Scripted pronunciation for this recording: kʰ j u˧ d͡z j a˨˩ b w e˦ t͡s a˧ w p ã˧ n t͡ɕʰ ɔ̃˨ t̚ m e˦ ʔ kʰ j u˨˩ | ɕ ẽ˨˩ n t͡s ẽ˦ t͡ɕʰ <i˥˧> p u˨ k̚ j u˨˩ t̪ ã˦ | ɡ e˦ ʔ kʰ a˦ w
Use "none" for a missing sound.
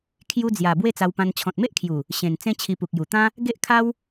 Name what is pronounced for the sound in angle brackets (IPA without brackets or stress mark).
i˧